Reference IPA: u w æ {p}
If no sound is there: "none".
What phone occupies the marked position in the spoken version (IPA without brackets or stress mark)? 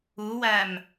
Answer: m